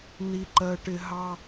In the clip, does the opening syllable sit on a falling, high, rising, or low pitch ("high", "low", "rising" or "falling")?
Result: low